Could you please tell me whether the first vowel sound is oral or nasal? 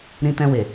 nasal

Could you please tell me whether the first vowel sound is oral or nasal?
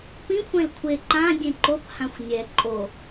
nasal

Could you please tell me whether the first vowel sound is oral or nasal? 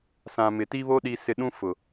nasal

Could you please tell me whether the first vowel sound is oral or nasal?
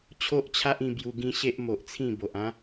oral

